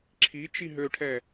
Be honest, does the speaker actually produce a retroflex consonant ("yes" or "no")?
yes